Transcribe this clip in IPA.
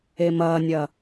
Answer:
e m ɐː nʲ ɐ

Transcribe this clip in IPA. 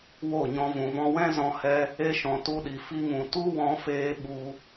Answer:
w o˦˨ ɲ ɔ̃˧ v ũ˨ v ɔ̃˧ w ɛ̃˦ z ɔ̃˦ h ɛ˦ | e˦ ʃ ɔ̃˧ t u˧ ɗ i˨ f i˧ ŋ ũ˨ t u˦ w ɔ̃˧ f eː˧ ɓ u˧

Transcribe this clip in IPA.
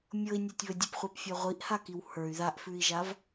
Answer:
mʲ ɤ i̯ nʲ a tʲ β ə dʲ ə p χʷ ɜ p fʲ ɜ ʁʷ i ʔ h a k i w h ə˞ y̯ ð a ʔ f ʉ i̯ ʒ a v

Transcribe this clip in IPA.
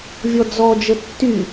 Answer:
vʲ ɔ d͡z ɔ d͡ʒ ə tː y

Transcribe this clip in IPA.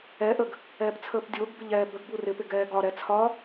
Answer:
ɛ ʔ ə ɡ | ɛː p t͡sʰ əː p dʲ ʊː ɡ b ɪ ʎ ɛː b ə ɡ b u r ɪ p ɪ ɡ ɛː ɡ ɒ ɾ ɛ t͡sʰ ɒ

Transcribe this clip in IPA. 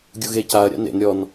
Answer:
ɡʲ u ɣ e c a ɐ̯ ɾʲ a̰ n ḛ n ɾʲ ɔ n

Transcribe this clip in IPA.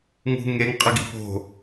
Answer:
ŋ ṳ ŋ e ŋ qʼ ə ɡ ḭ p o̤

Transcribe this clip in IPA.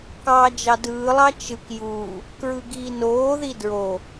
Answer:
k ɑː d͡ʒ ɑ d ɯː lˠ ɑ t͡ʃ ɯ k j uː | k ɹ ɯ ɡ iː n oː ð i d ɹ o

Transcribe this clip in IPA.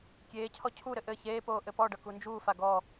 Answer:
kʲ eː cʰ ɔ cʰ u ɾ ɘ ʔ ɘ ç eː p oː ʔ ɘ p ɔ ɖ ʌ k u n d͡ʒ uː f a ɡ ɔ

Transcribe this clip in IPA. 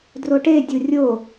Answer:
d r o ʈ e dʲ u rʲ o

